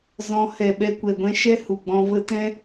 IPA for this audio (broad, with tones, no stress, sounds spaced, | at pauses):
z ɔ̃˨˦ h ɛ˨ ɓ ɛ˧ kʷ ɛ˨ ɡʷ ɛ̃˧ ʃ ɛ˦ h u˨ ɡ͡b ɔ̃˧ v ə˧ t ɛ̃˦